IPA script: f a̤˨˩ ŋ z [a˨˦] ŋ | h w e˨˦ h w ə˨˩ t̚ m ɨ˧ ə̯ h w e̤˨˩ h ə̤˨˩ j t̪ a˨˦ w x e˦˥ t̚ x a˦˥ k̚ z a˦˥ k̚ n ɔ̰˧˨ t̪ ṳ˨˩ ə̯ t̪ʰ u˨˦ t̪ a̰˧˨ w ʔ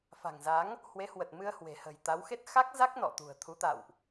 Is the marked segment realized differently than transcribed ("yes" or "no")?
no